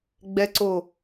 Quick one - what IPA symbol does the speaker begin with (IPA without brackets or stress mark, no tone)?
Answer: ɡ͡b